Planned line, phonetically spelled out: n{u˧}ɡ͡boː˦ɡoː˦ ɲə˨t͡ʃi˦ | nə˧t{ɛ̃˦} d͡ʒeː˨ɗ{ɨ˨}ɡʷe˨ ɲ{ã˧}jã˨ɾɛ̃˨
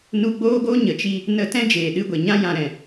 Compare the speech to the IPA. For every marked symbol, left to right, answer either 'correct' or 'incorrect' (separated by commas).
correct, correct, incorrect, correct